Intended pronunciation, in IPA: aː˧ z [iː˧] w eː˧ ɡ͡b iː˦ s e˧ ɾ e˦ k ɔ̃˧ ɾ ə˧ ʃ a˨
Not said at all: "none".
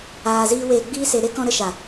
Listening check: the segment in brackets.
iː˦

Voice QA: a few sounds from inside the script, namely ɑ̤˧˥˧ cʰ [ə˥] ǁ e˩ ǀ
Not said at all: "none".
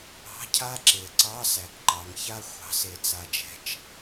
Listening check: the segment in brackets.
a˥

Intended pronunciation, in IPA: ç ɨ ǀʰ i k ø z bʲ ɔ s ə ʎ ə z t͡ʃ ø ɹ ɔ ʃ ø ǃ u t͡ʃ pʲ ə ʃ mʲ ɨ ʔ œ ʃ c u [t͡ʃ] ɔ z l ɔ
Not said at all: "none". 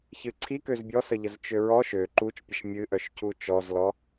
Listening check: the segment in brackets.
t͡ʃ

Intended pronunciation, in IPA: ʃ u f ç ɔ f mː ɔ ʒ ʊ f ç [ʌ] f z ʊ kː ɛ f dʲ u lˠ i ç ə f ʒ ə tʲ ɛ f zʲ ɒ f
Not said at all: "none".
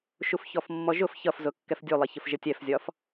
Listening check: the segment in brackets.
ʌ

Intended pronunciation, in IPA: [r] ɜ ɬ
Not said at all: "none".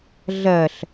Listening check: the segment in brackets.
ɮ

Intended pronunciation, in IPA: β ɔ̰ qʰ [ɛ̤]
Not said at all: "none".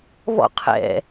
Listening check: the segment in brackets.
ɛ̰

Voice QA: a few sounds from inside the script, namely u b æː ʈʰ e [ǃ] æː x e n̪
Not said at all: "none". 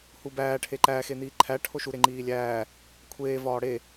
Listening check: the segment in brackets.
ǃ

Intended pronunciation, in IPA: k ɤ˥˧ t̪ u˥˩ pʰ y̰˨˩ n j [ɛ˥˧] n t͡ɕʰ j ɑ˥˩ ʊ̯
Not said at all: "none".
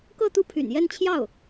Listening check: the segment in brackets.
ɛ˥˧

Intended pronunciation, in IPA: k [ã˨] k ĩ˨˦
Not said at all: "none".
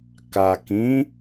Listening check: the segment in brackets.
a˨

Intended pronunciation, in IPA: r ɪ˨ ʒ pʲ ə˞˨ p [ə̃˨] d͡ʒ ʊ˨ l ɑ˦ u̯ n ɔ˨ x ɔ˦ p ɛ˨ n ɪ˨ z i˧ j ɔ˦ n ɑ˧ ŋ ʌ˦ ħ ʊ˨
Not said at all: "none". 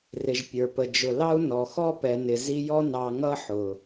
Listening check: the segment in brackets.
ə˨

